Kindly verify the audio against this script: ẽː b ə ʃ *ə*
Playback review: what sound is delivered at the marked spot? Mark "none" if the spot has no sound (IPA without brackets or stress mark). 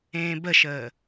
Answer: əː